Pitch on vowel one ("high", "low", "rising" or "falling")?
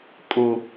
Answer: high